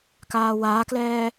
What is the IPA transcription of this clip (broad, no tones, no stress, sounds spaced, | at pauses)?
k aː w aː k l ɛː